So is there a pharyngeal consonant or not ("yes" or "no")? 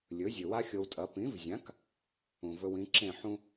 yes